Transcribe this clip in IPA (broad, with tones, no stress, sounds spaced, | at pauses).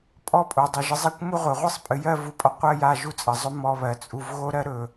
pʼ ɔ˥ pʼ o˩˧ dˤ ɘ˩˧ ʒ ɨ˧ zˤ a˥ kʷ m u˥ ʁʷ ɘ˩˧ ʁʷ ɨ˥˧ sˤ pʼ ɨ˩˧ j ɜ˥˧ v u˧˩ pʼ ɔ˧ qʷ ɜ˥˧ j a˥˧ ʒ u˥ t͡sʼ ɘ˩˧ zˤ ɵ˥ m ɔ˧ β ɜ˩˧ t͡sʼ u˧ v ɣ o˥ ɾ ɜ˥ ɾ ɵ˧˩